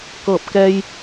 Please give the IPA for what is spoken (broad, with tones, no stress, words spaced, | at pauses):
kɤː˧˩p̚kɛː˧j